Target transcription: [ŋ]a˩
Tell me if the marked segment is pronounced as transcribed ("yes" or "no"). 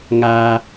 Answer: yes